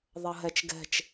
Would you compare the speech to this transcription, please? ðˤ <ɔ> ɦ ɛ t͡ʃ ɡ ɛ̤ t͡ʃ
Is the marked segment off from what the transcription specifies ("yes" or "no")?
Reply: yes